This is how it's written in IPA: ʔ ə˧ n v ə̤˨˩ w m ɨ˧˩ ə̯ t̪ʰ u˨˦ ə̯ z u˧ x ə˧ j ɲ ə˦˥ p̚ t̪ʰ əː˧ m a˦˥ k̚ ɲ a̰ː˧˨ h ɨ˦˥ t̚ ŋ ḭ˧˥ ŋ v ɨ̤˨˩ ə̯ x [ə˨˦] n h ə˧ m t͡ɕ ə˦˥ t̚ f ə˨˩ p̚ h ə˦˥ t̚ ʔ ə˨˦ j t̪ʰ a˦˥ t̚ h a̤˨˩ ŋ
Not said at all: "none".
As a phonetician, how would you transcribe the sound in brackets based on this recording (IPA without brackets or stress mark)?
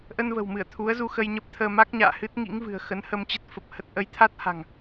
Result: ə˨˦